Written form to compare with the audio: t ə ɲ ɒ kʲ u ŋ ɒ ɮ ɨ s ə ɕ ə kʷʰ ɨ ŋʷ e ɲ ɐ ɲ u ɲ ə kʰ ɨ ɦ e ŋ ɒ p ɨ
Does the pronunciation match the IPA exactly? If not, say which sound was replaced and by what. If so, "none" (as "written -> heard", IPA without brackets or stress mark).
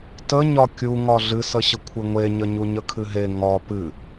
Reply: ɐ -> ə